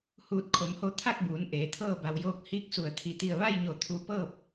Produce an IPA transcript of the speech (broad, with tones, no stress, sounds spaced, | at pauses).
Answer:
h uː˧˩ t̚ kʰ o˩˧ m h o˧ t̪ʰ a˥˨ k̚ b uː˩˧ n ʔ eː˩˧ t̪ʰ ɤː˥˨ b a˩ w j oː˧ k̚ h iː˧˥ k̚ s u˧˩ ə̯ t̪ʰ i˩ t̪ i˧˩ ə̯ ʋ a˥˨ j ɲ o˧˩ t̪ʰ u˧ p ɤː˥˨ p̚